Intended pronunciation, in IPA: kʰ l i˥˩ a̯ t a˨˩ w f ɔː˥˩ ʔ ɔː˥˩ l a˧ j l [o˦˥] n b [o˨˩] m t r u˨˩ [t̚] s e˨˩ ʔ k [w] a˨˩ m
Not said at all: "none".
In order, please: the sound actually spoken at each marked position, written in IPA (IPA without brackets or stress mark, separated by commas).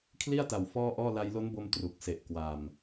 o˦˥, o˧, k̚, w